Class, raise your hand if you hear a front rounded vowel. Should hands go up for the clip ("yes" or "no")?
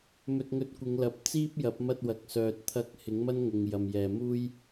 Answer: yes